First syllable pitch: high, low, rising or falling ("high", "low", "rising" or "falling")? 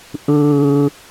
high